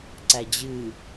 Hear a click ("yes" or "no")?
yes